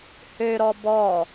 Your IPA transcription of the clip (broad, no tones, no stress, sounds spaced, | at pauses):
h ø ɾ ɔ b ɔ